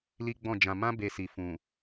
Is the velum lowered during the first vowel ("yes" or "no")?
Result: no